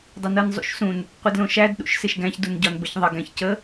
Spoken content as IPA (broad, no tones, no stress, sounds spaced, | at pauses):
dˤ ɪ n ɤ n zˤ ṵ ʃ s ũ n | qʷ ɪ d l õ ʃ æ d ɗ ṵ ʃ s ɪ ʃ ɡ æ̃ ç d u n ɟ ɒ n b ə ç ðˤ ɪ ɡ æ̃ ç c ə